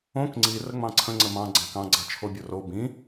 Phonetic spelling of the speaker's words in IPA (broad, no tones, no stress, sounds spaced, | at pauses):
õ k ŋ͡ǀ i r ə ŋ͡m ɑ̃ ǀʰ ə̃ ŋ͡ǀ ə m ɑ̃ ɡ͡ǀ ɑ̃ k ɑ̃ ɡ͡ǀ ɑ t͡ʃʰ o bʲ o r o b ĩ